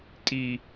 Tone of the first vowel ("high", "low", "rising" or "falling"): low